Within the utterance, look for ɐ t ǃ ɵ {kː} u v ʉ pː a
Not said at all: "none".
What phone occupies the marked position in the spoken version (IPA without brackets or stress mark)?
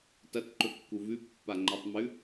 kː